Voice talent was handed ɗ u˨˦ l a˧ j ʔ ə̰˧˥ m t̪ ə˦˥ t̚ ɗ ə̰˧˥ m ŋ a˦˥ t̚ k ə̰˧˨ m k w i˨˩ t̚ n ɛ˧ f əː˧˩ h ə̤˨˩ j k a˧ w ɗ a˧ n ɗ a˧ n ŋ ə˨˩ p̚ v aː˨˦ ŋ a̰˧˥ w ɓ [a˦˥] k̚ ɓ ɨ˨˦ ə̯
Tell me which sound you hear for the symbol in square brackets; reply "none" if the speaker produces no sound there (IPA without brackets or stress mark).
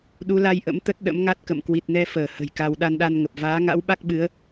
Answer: a˦˥